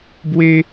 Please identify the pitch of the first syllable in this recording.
high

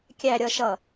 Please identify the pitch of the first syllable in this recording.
low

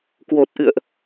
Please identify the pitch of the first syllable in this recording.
low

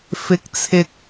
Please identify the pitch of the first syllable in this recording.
rising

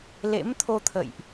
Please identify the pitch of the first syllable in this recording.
rising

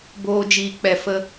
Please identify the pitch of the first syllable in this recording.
low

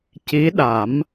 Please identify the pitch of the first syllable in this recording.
rising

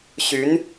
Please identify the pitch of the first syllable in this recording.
rising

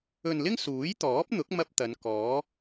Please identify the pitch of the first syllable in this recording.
low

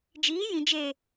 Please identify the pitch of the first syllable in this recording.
rising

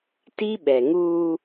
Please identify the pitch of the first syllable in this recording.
high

